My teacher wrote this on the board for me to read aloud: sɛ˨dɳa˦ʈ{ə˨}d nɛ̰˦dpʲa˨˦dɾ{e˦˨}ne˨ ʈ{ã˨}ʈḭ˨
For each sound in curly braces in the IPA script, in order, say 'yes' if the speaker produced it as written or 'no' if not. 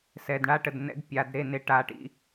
yes, yes, no

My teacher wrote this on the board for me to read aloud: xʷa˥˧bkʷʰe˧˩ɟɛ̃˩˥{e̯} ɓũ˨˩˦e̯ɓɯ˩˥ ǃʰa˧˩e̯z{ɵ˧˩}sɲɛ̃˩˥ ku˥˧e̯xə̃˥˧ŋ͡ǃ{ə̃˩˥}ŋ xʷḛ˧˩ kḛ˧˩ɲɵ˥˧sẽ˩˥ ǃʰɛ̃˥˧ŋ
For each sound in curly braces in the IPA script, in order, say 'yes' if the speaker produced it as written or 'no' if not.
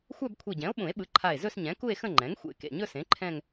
no, no, no

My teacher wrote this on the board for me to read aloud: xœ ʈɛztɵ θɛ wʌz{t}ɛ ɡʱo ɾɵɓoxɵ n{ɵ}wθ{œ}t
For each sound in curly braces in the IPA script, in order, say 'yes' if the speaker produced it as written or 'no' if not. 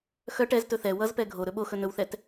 no, yes, no

